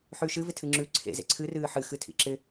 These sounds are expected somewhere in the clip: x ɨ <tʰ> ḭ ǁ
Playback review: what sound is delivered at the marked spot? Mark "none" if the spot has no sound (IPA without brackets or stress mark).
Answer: tʰ